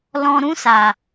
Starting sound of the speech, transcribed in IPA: l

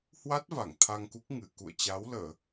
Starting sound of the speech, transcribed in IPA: h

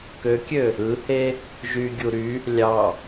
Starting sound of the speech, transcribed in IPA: k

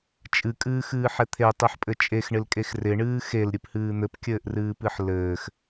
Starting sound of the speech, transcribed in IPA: t͡ʃʼ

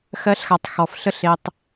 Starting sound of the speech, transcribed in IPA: x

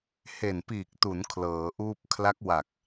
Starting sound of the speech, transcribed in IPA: h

